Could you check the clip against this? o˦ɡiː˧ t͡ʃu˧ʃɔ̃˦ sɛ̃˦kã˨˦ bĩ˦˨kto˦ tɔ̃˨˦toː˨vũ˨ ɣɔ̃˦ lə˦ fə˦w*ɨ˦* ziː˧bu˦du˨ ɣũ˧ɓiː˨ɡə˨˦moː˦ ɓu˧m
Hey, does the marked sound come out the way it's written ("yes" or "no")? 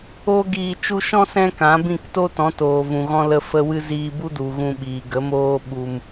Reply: yes